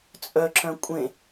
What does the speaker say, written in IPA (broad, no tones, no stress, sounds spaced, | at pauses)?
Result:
t͡sʼ œ ǁ œ̃ kʷʼ ẽ